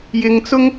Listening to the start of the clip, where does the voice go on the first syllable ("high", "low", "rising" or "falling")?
high